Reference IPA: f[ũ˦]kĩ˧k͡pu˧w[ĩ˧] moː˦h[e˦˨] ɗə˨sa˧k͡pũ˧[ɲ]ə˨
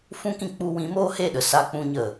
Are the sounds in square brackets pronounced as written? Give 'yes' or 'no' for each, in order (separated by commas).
yes, no, yes, yes